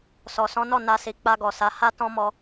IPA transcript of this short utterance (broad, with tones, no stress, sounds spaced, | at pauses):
s ɔ˨ s ɔ̃˨˦ n ɔ˦˨ n a˧ s i˨ k͡p a˧ ɡ ɔ˨ s a˨˦ h a˦ t ɔ̃˦ m ɔ˧